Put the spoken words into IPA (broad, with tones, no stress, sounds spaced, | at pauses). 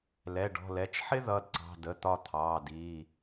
l ɛ˩˧˩ ɖ ɔ̤˩˧˩ l ɛ˩˧˩ t͡ʃ ħ ɪ˥ ð ʌ˩˧˩ d ǀ ɑ̤˩˧˩ d ə˩˧˩ t̪ ɒ˦˨ t̪ʰ ɑː˩˧˩ d iː˩˧˩